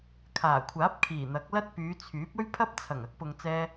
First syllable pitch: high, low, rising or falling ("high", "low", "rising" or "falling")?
low